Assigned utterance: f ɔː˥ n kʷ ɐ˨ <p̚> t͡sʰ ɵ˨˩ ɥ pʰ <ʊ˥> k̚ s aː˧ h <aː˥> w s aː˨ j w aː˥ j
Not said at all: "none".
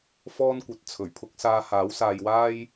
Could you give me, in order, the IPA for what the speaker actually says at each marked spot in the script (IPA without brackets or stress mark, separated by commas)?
t̚, ʊ˥, aː˨˥